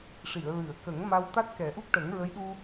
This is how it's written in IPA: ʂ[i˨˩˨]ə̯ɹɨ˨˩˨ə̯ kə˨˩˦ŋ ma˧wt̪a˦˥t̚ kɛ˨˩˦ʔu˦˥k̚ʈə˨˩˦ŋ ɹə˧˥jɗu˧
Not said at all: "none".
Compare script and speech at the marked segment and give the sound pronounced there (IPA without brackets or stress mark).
i˨˩˨